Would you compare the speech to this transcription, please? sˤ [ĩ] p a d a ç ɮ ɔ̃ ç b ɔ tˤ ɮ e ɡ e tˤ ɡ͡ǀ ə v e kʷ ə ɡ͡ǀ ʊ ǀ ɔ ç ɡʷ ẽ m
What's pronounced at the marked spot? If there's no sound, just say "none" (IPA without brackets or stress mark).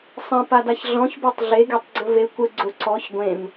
ẽ